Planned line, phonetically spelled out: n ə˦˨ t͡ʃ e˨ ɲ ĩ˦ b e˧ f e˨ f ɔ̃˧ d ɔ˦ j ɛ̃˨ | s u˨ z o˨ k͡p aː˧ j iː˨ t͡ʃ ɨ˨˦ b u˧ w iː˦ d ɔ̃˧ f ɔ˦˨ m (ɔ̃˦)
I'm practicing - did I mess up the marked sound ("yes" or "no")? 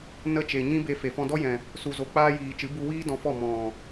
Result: yes